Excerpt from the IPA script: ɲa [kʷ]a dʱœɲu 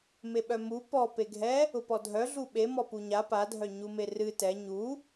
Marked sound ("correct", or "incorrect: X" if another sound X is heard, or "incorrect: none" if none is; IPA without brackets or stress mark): incorrect: p